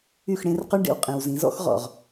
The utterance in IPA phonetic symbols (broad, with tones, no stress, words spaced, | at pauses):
y˦˨xɽẽ˦r qʉ˦ɳɖḛ˨w qʼĩ˨wzĩ˨˦zɔ̰˦x ʁɔ̰˨ʁ